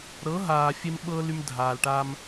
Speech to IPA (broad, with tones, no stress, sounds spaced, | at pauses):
ɾ ɤ˨˦ ɦ aː˨ fʲ e˦ m ɓ ɤː˦ l y˦ m dʱ aː˨ l ʈ aː˦ m